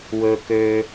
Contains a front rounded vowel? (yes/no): yes